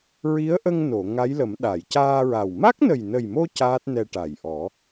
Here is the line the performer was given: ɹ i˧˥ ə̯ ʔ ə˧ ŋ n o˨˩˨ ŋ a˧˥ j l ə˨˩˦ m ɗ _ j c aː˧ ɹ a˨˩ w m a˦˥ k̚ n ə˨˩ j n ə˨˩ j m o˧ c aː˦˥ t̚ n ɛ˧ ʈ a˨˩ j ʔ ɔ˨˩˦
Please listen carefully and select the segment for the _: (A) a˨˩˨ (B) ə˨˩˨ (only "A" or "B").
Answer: A